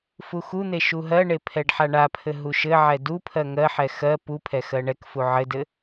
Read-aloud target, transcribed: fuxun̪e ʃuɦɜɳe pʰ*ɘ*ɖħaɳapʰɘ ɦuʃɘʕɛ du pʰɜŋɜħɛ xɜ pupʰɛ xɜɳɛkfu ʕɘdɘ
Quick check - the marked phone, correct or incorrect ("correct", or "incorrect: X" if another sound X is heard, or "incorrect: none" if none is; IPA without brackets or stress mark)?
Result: incorrect: ɛ